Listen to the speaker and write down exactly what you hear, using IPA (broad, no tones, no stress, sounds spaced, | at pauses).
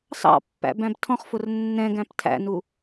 s ɑ̰ pː æ̰ b æ̃ b tʰ ɔ̃ χ f ʊ r nː ɛ̃ ɡ æ̃ p tʰ æ̰ n u